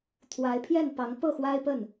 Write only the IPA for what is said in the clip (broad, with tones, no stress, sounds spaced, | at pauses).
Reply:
t̪ʰ w a˧˥ ɪ̯ pʰ j ɛ˥˩ n p ɑ˧˥ ŋ p ɤ˥˩ x w a˥ ɪ̯ p ə˥˩ n